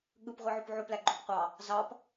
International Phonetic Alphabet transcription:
ɠ ɯ p ʁʷ i ʕ o p ʕ o p l æ ɡ͡ǃ o p qʷ ɑ | z ɑ p

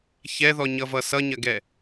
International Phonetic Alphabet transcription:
ç ɛ ð ɔ ɲ ʌ v ʌ s ʌ ɲ ɐ ɡ ɛ

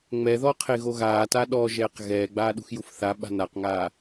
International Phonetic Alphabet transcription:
ŋ͡m ɛ ð ɔ qʰ e ɣ o ɣ aː t a ɗ ɔ ʒ ɛː q ɣ ɛː ɡ͡b aː ɗ ṳ x j u f θ a ɓ a̤ n a q ŋ aː

